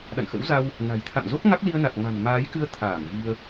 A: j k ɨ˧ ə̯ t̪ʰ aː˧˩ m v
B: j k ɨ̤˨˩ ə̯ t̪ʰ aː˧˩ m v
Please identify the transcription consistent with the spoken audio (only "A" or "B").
A